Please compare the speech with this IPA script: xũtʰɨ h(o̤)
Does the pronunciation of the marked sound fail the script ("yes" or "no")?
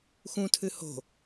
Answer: no